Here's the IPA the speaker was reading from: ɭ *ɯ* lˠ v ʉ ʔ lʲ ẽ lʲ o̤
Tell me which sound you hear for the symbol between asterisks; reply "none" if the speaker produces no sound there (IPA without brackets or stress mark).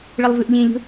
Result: ə